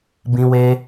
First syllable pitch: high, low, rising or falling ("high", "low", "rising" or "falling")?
high